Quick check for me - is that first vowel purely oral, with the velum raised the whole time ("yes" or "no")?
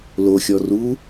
yes